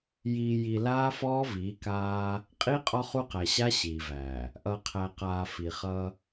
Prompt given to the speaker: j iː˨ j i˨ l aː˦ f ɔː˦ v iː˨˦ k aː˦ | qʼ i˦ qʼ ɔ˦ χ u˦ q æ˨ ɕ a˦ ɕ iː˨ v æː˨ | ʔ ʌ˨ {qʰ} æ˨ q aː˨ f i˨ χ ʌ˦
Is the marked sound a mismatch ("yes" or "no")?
no